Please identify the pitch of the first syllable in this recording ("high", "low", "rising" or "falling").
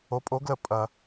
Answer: rising